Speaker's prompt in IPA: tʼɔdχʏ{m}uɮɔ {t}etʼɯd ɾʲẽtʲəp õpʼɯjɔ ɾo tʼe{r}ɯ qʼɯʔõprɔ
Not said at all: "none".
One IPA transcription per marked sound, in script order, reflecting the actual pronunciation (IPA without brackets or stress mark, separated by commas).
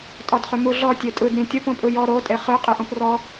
m, tʲ, χ